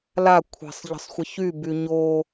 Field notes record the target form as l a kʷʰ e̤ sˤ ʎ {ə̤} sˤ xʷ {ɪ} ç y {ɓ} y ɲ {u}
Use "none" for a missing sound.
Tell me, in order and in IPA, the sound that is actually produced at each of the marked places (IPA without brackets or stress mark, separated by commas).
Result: ə̤, ɪ, b, o